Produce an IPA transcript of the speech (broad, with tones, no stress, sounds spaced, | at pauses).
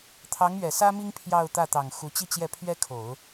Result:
t̪ʰ ɑ˧˥ ŋ ɥ ɛ˨˩ s ä˥ m i˥ ŋ pʰ j ɑ˥˧ ʊ̯ t̪ ä˥˩ t̪ ɑ˨˩ ŋ x u˧˥ t͡ɕ i˥˧ t͡ɕ j ɛ˥˩ pʰ ɥ ɛ˥ kʰ o˨˩˦ ʊ̯